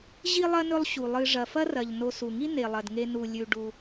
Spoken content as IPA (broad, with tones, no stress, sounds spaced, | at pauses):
ʑ i˥ lˠ ɐ˥ n ɵ˦ lˠ ɕ u˩ lˠ ɨ˨ ʐ ɐ˩ f ɐ˦ r ɐ˩ ʎ n o˨ s u˩ ŋ i˥ n e˩ lˠ ɐ˩ d ŋ e˨ n u˩ lʲ ʉ˨ ɖ u˨